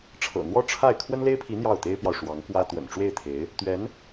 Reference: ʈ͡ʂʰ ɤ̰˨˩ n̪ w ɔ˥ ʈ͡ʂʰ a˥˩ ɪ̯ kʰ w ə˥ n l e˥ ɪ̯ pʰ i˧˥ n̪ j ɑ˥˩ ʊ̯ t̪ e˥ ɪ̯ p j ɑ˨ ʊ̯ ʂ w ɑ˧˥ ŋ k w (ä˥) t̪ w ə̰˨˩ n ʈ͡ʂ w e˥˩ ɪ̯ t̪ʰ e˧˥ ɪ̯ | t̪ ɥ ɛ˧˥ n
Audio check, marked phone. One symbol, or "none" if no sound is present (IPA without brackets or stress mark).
ä˥